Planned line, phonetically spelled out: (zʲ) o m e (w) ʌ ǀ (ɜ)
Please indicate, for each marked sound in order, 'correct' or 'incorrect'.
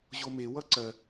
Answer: incorrect, correct, correct

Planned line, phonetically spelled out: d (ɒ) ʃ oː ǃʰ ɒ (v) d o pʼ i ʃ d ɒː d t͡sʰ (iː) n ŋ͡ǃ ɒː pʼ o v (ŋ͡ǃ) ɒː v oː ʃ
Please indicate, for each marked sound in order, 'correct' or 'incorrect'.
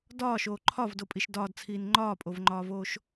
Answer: incorrect, correct, correct, correct

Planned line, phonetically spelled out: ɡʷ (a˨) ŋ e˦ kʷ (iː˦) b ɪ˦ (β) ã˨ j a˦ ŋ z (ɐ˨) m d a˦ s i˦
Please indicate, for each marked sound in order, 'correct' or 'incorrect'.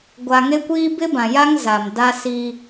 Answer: correct, correct, incorrect, incorrect

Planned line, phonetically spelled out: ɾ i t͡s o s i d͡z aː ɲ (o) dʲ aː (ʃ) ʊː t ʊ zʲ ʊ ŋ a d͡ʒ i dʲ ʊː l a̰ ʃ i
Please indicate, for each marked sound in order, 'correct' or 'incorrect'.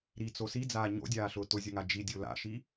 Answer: incorrect, incorrect

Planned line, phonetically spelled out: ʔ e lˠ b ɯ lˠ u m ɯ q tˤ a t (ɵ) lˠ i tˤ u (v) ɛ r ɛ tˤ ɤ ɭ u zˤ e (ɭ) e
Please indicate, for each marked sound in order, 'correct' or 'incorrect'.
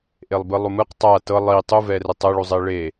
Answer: incorrect, correct, correct

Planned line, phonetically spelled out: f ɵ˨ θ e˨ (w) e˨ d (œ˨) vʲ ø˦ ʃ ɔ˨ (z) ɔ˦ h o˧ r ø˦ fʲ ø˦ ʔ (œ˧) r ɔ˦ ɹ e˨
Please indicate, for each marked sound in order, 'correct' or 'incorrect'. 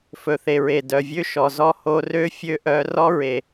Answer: incorrect, correct, correct, correct

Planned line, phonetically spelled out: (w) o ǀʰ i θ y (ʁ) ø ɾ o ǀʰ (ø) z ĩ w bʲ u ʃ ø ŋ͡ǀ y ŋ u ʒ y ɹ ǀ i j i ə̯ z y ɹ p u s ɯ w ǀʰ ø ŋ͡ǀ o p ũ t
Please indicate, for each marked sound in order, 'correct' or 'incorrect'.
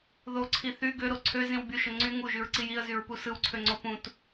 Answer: incorrect, incorrect, correct

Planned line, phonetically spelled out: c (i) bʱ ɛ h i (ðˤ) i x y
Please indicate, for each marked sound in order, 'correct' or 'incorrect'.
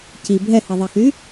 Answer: correct, correct

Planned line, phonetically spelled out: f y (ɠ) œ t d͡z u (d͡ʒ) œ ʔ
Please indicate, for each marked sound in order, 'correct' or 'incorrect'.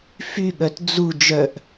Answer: correct, correct

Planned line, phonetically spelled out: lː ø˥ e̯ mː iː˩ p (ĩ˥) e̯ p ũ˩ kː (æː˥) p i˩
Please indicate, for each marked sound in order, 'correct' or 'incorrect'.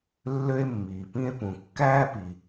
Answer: correct, correct

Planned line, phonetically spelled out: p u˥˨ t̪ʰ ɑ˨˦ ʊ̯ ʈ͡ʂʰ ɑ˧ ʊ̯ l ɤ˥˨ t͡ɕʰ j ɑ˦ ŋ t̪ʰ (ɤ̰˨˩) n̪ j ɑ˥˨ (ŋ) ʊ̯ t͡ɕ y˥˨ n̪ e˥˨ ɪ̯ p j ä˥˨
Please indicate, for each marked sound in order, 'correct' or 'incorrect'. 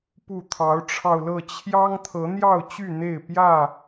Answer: incorrect, incorrect

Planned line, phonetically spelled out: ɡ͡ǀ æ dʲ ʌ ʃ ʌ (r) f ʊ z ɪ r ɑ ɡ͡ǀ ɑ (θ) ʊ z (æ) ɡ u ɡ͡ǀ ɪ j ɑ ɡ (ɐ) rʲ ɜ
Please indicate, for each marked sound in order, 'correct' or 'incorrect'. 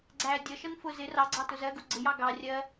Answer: incorrect, incorrect, incorrect, incorrect

